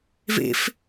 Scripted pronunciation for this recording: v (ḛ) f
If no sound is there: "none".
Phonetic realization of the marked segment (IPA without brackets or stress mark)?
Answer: ḛ